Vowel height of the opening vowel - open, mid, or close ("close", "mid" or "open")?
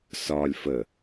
open